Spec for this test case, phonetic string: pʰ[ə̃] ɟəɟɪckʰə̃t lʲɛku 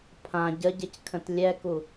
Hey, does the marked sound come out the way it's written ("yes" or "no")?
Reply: no